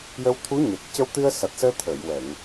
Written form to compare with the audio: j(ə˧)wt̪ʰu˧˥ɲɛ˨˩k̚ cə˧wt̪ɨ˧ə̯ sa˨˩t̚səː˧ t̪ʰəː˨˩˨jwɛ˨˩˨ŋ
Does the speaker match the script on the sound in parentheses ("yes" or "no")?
yes